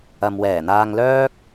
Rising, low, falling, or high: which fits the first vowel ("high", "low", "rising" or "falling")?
low